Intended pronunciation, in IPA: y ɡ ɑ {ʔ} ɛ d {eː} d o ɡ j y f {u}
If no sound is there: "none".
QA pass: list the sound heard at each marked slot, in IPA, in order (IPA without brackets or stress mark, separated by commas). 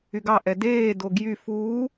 ʔ, eː, uː